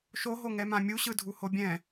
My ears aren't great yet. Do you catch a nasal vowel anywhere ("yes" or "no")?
yes